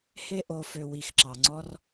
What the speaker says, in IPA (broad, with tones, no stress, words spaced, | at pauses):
he˧ ʔo˨fø˨ wi˨xǁɑ˨ŋ͡ǀɔ˧r